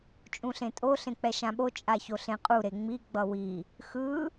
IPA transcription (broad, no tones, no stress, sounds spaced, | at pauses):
t͡ʃʼ ũ ɬ ẽ tʼ o ɬ ẽ k͡p ɛ ʃ ã ɓ o t͡ʃʼ a ç o ɬ ẽ qʼ u ɾ e ŋ͡m i ɡ͡b ʌ w i | x ɯ